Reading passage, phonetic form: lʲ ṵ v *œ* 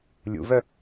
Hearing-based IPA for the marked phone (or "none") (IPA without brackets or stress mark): œ